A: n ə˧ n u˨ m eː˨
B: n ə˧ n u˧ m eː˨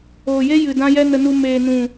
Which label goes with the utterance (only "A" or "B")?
B